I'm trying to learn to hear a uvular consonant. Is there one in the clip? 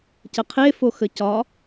yes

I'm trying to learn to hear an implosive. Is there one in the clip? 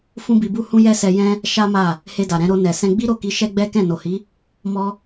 no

